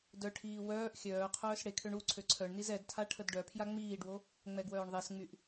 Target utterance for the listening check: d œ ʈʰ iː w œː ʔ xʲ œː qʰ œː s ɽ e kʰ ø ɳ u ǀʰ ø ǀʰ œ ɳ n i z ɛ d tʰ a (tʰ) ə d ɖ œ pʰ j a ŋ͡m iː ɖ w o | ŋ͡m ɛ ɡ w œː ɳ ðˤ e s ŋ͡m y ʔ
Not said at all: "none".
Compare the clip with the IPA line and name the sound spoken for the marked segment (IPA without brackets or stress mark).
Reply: ʈʰ